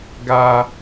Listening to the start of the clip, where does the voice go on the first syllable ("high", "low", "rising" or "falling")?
high